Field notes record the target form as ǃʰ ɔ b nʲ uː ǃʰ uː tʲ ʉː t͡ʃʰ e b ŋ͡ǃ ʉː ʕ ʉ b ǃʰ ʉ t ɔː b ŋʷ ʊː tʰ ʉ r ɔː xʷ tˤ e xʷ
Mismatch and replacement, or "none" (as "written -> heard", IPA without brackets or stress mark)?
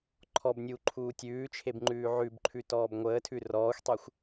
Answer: ʊː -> əː